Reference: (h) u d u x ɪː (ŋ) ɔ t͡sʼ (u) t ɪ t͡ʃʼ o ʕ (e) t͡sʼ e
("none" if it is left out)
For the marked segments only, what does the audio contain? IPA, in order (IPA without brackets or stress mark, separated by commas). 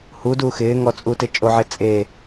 h, ŋ, u, e